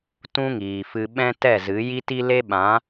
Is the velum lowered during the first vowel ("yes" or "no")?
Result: yes